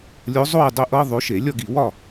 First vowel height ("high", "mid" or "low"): mid